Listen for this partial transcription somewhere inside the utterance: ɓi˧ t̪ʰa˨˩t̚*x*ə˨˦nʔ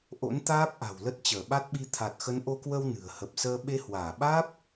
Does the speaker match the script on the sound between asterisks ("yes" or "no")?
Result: yes